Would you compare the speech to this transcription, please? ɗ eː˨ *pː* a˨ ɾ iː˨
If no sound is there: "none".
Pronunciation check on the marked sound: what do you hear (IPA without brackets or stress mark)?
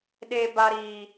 b